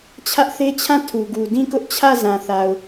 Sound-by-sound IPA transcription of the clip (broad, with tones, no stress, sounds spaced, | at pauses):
t͡ɕʰ ä˦ ʔ θ e˦ t͡ɕʰ ã˦˨ tʰ u˨ ɡ u˨ d ĩ˦˨ k ʊ˦ ʔ t͡ɕʰ ä˦˨ z ã˨ θ a˨ ʊ̯